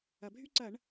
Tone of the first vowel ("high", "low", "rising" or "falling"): low